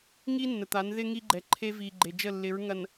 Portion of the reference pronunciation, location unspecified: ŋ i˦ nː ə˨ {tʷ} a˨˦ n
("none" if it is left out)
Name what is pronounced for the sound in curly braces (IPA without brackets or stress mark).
t̪